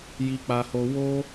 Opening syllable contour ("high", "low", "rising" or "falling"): high